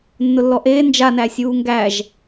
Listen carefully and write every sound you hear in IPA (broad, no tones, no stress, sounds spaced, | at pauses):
nː ʊ lː ɔ ʔ eː n d͡ʒ a n æ sʲ uː ŋ ɡ æ ʒ